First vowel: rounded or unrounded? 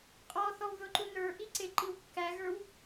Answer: rounded